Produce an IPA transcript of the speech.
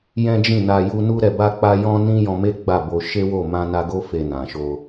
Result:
j ɛ̃˦ d͡ʒ ĩ˦˨ n a˧ j u˧ n u˦ ɾ ɛ˧ b a˦ k͡p a˦ j ɔ̃˦ n ĩ˦ j ɔ̃˧ m e˦ ɡ͡b a˦˨ b o˧ ʃ e˦ w o˦˨ m ã˧ n a˧ ɡ o˦ f e˧ n ã˨ ʃ o˧

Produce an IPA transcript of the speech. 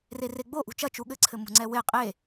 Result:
r e r e ɡ͡b o ʔ ṳ t͡ʃ ɐ t͡ʃ u ɠ ɘ ǀʰ ɘ m ṳ ŋ͡ǀ ɛ w e qʼ e

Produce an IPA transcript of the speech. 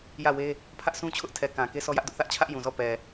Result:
j ä˦˨ w e˦ | pʰ ä˦ ʔ s ũ˦ t͡ɕʰ ʊ˦ ʔ tʰ ɛ˨ k ã˨ k e˦ s ɔ˦ j ä˦ ʔ d ʊ˦ ʔ θ ä˦ ʔ t͡ɕʰ ä˦ ʔ j ũ˨ z ɔ˦˨ p ɛ˨

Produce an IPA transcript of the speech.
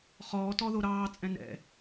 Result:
χ ɔː t ɔ ð o ɾ ɑː t͡sʼ ɛ̃ n ɛ̰

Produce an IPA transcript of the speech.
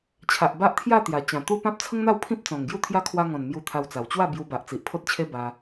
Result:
t͡ɕʰ a˨ ʔ b a˦ ʔ t̪ʰ j a˥˧ t̪ j a˨˩ t͡ɕ ã˨˩ t̪ u˦ p ã˦ p̚ t͡sʰ ə˦ ŋ n̪ a˥˧ w pʰ ĩ˦ p̚ t͡s ɔ̃˨˩ ŋ ɡ j u˦ t̪ʰ j a˦ kʰ w a˧ ŋ ɔ̃˨˩ n m j u˧ t̪ʰ a˧ w t͡s a˨˩ w t͡ɕ w a˥˧ b j u˧ b a˨ ʔ t͡s i˨ ʔ pʰ o˦ t̚ t͡ɕʰ e˦ b a˧

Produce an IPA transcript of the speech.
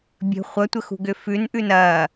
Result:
bʲ ə̤ χʷ ɐ tʷ ə x ṳ ɡ ʏ f ʉ n ʔ ʉ n ɐ

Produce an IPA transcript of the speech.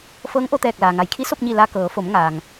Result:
f ɤː˧˥ ŋ ʔ o˧ t̪ ɛː˧˩ k̚ l aː˩ ŋ a˩˧ j kʰ i˧˥ s o˥˨ p̚ ɲ i˧˩ l a˧ k ɤː˩˧ f o˩˧ m ŋ aː˩ ŋ

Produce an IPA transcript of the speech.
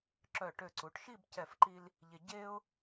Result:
ǁ œ˧˩ ʈ ø˧˩ ǀ u˩˧ ʈ ʃ i˥˧ b c ɛ˧˩ f ǃ i˧ l | ʎ e˧ ɟ e˥ ʊ̯

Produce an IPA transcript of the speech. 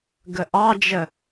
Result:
ɡ ə ʔ ɑ d͡ʒ ə

